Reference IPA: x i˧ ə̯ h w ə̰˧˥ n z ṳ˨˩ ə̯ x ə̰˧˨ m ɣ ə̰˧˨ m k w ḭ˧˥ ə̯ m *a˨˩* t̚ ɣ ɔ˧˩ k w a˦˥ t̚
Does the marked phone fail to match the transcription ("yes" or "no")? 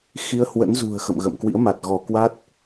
no